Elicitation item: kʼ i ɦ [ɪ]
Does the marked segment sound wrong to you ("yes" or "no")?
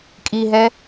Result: yes